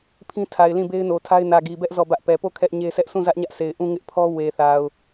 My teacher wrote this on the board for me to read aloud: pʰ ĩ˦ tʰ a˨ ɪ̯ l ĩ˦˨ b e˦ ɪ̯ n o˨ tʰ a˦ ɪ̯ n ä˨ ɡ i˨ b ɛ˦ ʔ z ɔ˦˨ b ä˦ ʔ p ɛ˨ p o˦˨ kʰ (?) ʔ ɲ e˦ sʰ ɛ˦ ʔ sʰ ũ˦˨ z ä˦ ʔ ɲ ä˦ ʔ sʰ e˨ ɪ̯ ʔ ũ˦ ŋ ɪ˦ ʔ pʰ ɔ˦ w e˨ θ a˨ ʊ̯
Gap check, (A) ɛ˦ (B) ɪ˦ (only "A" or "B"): A